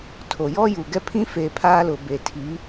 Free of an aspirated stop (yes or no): no